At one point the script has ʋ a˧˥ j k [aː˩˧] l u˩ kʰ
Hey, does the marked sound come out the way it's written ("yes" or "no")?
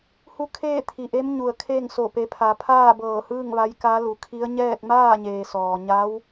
no